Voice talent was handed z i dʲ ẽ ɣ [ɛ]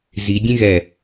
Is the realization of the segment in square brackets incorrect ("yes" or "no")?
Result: no